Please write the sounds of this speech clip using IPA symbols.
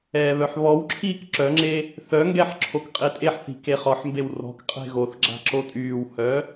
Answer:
ɛːβœħβɔwǁʰiːk ǁœŋ͡ǁe | θœŋɡɛħ ǁʰokqʼitʼeħθi̤ keχɔħmbew rɔ̤kqʼe̤ ɣoθɡ͡ǁa̤ ǁotʼyːwhœ

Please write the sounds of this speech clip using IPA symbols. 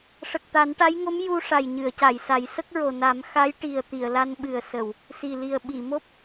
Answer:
ʂə˨˩k̚t̪a˨˩˦nʈa˧˥jŋo˧˥m ju˧ ʂa˨˩jɲɨ˨˩˨ə̯ca˨˩˨jsa˨˩˦j sə˦˥k̚ɹo˨˩na˨˩˦m xa˧˥jʈi˨˩ə̯ t̪i˨˩˨ə̯la˧nɓɨ˨˩ə̯sə˨˩˨w | si˨˩li˨˩ə̯ ɓi˨˩˨mo˦˥p̚

